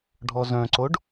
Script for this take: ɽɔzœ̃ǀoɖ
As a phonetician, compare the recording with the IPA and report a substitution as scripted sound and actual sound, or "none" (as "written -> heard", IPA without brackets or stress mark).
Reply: ɽ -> ɖʱ